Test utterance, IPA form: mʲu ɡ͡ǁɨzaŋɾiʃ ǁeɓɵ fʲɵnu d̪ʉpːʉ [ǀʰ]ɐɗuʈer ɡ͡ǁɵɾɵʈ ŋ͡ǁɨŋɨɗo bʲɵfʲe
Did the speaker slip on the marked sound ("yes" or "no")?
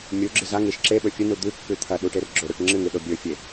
yes